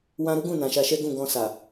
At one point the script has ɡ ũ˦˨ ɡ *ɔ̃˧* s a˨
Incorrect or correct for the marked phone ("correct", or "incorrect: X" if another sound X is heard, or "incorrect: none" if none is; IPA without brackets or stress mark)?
correct